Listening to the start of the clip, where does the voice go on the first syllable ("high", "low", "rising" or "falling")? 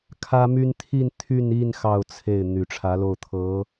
high